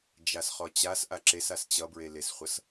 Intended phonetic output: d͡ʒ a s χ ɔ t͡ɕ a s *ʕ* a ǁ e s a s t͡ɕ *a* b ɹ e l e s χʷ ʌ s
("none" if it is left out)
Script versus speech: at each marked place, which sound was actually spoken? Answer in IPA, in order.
ʔ, ʌ

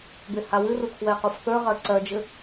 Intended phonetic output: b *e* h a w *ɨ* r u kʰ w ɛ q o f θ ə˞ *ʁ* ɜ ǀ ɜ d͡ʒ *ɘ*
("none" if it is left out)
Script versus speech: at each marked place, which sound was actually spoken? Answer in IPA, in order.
e, ɨ, ʁ, ɘ

